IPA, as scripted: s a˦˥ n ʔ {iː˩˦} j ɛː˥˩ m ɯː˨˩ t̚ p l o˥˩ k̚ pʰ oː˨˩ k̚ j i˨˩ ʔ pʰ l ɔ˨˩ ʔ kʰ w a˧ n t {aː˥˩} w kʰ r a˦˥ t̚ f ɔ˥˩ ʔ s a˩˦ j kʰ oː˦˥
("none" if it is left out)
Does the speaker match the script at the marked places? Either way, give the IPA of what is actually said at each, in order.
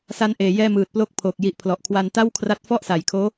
eː˩˦, a˥˩

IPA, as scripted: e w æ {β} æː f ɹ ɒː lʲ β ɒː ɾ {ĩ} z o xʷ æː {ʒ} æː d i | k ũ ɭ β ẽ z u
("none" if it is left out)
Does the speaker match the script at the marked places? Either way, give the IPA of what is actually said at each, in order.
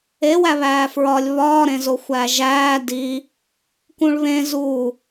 β, ẽ, ʒ

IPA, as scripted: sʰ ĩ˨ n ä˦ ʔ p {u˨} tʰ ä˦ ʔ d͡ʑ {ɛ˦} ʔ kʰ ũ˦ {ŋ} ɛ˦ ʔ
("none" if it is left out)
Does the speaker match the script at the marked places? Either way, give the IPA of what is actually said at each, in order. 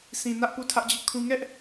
u˦˨, ɪ˦, ŋ

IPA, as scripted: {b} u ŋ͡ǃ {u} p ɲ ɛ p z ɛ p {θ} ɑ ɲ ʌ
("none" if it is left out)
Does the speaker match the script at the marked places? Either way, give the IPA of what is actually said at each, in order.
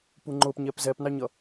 p, ʊ, n

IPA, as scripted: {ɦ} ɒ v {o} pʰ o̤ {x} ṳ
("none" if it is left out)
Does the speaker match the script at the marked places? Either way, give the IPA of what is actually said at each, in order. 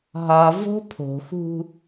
ɦ, o̤, x

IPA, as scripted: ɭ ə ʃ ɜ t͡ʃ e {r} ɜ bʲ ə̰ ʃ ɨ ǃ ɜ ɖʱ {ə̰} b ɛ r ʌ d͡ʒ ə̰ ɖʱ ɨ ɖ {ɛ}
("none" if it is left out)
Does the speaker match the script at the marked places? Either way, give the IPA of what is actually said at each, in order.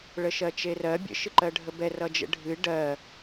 r, ə, ɜ

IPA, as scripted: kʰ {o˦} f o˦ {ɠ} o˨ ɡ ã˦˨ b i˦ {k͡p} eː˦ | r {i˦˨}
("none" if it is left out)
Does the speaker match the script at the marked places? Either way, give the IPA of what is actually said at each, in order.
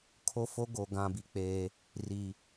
o˦, ɡ, k͡p, i˨

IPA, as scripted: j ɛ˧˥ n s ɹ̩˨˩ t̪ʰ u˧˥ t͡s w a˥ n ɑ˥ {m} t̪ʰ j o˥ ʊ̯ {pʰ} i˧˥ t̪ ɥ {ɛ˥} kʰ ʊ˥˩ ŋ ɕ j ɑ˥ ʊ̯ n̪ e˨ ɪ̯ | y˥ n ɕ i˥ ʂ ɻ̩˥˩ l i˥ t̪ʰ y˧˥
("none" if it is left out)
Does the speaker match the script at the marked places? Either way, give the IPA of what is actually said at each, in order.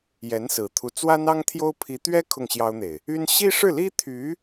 ŋ, pʰ, ɛ˥

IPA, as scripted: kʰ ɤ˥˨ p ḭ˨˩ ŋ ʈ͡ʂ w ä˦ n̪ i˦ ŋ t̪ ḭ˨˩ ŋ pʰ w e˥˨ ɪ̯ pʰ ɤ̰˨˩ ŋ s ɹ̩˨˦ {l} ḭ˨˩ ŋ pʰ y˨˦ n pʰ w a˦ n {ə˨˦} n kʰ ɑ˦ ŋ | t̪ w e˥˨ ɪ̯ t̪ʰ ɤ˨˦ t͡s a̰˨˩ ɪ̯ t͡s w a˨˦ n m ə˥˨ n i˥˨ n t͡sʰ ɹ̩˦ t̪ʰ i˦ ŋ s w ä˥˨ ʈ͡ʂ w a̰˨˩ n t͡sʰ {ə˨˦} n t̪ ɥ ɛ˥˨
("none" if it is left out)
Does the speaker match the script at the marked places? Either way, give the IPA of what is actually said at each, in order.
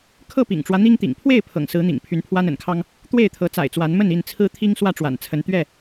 n̪, ə̰˨˩, ə˨˦

